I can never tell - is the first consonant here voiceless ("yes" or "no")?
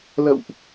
no